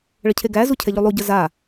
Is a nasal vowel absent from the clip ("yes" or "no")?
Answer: yes